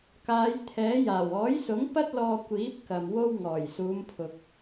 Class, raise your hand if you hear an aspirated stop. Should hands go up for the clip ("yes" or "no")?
yes